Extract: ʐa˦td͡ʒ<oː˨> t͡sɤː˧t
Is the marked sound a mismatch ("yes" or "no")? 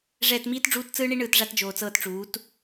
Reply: no